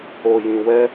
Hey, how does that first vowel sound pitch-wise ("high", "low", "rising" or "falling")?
low